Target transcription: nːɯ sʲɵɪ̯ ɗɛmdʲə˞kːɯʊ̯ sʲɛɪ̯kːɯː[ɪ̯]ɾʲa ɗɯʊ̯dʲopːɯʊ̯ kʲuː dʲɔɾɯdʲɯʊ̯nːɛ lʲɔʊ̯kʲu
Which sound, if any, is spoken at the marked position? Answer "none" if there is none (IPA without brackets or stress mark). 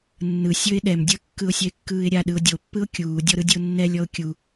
ɪ̯